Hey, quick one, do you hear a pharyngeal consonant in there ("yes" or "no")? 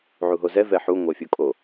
yes